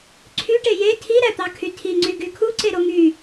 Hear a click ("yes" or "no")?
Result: yes